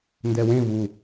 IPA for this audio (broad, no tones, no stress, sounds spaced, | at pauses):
n d ɛ w ẽ v u